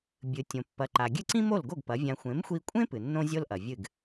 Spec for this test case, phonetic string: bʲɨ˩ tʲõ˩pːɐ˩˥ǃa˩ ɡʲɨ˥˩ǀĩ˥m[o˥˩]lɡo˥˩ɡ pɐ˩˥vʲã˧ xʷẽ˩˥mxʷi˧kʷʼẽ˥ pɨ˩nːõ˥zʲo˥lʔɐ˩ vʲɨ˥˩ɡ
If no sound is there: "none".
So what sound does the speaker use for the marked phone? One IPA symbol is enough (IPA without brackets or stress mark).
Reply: o˥˩